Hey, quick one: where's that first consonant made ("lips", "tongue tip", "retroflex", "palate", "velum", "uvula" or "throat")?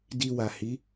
tongue tip